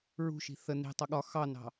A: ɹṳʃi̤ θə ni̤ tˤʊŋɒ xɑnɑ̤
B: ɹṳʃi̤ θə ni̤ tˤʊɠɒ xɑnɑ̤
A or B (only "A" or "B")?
B